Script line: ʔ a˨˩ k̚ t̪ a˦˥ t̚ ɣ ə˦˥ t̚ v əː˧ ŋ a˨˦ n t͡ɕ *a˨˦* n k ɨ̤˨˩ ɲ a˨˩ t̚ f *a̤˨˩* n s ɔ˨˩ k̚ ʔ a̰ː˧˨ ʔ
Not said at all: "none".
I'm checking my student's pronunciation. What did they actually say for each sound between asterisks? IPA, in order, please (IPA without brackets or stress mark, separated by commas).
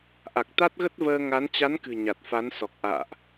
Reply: a˨˦, a˨˦